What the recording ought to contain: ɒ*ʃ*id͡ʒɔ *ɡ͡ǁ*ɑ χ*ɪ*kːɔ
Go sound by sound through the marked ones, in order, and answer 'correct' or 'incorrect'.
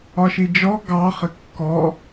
correct, incorrect: ɡ, correct

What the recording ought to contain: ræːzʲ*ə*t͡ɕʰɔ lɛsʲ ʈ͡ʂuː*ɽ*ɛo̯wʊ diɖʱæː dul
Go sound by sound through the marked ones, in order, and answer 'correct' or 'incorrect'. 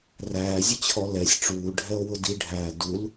correct, incorrect: ɖʱ

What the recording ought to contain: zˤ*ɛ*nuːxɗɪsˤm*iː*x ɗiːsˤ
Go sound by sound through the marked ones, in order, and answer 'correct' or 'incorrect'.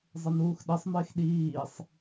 incorrect: ɪ, incorrect: ɪː

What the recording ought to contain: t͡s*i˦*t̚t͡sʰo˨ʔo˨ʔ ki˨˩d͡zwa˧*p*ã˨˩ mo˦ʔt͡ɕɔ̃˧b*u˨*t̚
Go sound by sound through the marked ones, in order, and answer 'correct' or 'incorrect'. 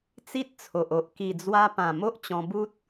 correct, correct, incorrect: u˦

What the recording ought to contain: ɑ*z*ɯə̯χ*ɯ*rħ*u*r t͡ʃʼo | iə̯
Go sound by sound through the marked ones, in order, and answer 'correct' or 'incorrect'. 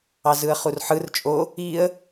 correct, incorrect: u, incorrect: ɯ

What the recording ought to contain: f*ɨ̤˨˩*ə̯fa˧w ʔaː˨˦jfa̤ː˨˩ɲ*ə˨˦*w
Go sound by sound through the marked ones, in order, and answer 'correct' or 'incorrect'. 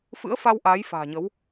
incorrect: ɨ̰˧˥, correct

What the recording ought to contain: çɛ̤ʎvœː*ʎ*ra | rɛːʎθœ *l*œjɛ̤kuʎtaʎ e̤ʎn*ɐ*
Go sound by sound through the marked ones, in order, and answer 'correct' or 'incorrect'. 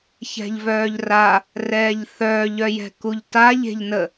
correct, incorrect: ʎ, incorrect: ə

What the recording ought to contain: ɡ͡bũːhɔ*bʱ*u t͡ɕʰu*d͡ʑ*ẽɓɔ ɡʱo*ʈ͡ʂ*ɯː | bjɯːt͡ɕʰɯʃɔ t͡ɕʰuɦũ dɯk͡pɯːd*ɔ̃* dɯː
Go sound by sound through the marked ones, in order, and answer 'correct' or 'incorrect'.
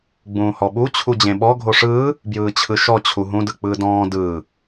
incorrect: ɓ, correct, incorrect: ʂ, incorrect: ɔ̃ː

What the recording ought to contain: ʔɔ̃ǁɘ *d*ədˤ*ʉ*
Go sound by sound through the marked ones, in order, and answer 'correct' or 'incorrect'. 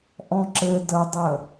correct, incorrect: ə

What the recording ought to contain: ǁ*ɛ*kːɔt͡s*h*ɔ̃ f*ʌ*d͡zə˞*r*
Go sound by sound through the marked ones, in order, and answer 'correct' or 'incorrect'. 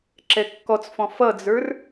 correct, incorrect: f, correct, correct

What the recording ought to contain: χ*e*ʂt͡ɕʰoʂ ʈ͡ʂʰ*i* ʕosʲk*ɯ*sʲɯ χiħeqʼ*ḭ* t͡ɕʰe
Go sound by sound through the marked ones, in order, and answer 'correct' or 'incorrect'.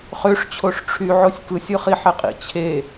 incorrect: ø, incorrect: y, correct, correct

